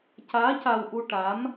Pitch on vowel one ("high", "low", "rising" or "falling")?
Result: rising